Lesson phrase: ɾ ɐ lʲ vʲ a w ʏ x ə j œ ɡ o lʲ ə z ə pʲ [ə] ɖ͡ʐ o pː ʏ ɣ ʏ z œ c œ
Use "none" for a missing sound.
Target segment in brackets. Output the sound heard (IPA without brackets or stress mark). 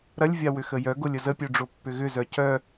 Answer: œ